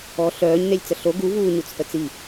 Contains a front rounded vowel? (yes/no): yes